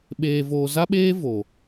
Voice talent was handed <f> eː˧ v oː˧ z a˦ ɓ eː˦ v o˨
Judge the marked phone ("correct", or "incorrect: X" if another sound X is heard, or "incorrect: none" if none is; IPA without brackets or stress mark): incorrect: ɓ